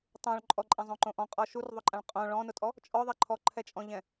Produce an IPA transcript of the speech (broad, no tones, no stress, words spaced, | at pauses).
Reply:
tˤõɭ ǃʼɔǃʼɛ̃zˤõǃõ ʔɔ̃qʼɔ ʃurðˤʊǃʼãɭ qʼõ ɭɔ̃nʊtʼɔ | t͡ʃʼɔðˤɛ ǃʰɔǃʰɛt͡ʃʼɔ̃ʎɛ̃